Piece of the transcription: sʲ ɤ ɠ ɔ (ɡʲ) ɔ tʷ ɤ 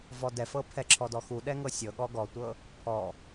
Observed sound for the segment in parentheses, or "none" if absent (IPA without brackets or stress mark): ɡ